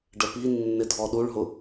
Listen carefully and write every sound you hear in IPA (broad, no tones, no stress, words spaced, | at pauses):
ɖəpi nːɪdʱɔɗuɭɦʊ